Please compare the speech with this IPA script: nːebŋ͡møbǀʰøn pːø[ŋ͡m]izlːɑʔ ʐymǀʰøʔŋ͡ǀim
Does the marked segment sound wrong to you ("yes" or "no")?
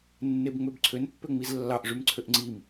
no